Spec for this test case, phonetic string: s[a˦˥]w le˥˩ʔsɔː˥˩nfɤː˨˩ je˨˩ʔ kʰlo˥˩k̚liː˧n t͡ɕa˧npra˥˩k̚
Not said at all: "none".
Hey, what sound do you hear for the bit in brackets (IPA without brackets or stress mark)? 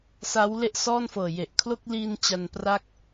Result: a˦˥